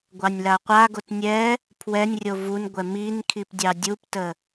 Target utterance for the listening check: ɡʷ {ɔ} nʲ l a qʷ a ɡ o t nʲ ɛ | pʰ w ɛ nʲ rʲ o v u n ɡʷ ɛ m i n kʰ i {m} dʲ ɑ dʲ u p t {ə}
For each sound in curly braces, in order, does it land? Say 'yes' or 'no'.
no, no, yes

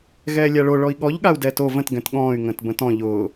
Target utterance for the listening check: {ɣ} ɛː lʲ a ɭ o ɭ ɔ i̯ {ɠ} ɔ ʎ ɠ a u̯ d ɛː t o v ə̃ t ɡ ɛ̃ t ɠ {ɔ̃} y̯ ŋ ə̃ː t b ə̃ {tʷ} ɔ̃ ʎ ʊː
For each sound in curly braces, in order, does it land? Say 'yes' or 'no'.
yes, yes, no, no

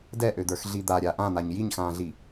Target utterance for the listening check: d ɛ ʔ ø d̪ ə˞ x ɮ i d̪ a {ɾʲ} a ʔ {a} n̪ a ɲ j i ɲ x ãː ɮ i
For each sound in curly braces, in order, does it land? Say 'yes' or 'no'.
yes, no

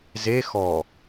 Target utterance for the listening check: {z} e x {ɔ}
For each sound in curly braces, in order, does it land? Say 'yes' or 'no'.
yes, yes

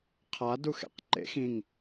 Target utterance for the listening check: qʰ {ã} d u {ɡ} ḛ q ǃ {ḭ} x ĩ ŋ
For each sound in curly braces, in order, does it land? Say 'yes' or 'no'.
no, no, no

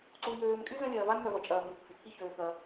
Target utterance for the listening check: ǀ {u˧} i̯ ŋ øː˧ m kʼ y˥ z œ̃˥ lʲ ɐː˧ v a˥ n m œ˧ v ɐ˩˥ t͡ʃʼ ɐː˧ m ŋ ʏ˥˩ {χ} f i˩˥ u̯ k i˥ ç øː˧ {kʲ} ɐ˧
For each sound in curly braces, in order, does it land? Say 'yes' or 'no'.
yes, no, no

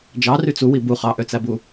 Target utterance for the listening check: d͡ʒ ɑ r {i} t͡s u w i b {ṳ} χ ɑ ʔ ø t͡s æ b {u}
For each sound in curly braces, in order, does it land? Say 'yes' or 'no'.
no, no, yes

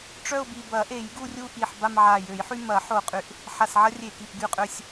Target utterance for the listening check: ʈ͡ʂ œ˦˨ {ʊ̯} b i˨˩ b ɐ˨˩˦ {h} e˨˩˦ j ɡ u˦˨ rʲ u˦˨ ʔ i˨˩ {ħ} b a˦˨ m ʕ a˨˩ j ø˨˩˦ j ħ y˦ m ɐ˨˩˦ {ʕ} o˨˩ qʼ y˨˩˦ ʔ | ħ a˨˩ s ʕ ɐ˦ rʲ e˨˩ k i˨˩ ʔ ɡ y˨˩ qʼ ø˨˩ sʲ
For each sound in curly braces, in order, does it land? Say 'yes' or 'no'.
yes, no, yes, no

